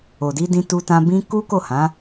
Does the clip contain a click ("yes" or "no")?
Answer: no